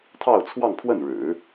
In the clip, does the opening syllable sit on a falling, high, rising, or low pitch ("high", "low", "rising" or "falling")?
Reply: falling